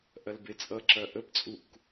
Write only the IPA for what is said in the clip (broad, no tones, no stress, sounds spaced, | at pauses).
ʔ ɐ l b e t͡sʼ ʌ ǁ ɐ ʔ ə b t͡sʼ u k